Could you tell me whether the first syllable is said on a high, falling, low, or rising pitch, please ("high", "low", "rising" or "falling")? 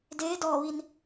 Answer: rising